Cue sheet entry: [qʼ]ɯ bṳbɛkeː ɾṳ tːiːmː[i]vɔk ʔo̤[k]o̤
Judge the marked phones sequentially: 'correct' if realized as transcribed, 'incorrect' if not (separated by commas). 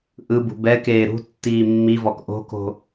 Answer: incorrect, correct, correct